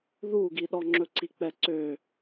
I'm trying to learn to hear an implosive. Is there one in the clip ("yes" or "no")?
yes